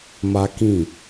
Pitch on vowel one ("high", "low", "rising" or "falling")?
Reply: high